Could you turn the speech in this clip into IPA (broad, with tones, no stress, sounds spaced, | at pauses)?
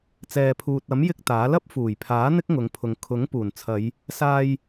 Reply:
t͡s ɛː˨ pʰ uː˨ t̚ ɐ˨˥ m j ɪ˥ k̚ t̪ aː˨˥ l ɐ˥ p̚ f uː˨˩ j pʰ aː˨˥ n̪ ɪ˥ k̚ ŋ ʊ˨˧ ŋ pʰ ʊ˨ ŋ kʰ ʊ˨˥ ŋ p uː˨˩ n t͡sʰ ɐ˨˧ j | s aː˧ j